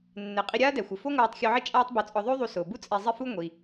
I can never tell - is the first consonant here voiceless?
no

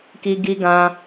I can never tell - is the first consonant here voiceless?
yes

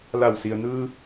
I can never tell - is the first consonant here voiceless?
no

